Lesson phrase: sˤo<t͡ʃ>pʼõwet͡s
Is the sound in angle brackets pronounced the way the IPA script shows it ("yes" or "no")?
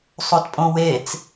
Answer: no